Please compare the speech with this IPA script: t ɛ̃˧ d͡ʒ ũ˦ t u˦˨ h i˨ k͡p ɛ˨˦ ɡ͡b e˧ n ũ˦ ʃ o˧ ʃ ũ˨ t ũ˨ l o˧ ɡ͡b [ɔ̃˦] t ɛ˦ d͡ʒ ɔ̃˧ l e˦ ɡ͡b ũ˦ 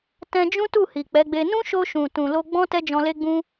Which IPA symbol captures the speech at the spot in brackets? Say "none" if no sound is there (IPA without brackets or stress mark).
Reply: ɔ̃˦